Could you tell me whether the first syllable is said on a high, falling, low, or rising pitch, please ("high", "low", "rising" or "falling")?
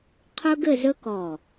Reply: high